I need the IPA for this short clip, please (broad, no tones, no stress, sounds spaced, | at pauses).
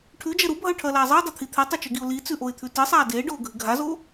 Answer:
ʈʰ ʉ d͡ʒ ɐ ɾ u bʱ ɐ ʊ̯ ʈʰ ɐː l aː zˤ ɨ ɪ̯ dˤ ɵ t̪ʰ i t̪ʰ e tˤ ɐ t͡ʃ ɵ ɡ i ʊ̯ l i t͡s ʉ ʔ o ɪ̯ t̪ʰ ʉ t ɨ sˤ aː d eː ɖ oː ɡʱ ɨ ɡʱ a z oː